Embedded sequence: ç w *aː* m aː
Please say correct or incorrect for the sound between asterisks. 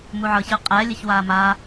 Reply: correct